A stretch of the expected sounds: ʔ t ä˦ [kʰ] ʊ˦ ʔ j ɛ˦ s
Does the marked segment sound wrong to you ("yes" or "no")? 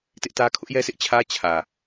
no